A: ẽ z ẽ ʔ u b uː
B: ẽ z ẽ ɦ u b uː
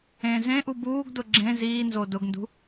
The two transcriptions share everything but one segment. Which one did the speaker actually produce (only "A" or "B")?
A